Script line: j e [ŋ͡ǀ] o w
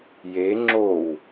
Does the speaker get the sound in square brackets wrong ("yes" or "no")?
yes